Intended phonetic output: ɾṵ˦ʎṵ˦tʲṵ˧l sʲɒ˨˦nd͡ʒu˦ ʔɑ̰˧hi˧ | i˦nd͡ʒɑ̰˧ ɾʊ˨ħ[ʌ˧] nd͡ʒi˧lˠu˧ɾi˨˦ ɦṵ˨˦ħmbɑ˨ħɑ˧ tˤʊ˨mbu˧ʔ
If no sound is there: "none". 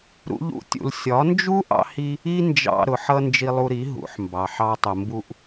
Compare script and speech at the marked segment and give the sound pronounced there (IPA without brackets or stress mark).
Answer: ʌ˧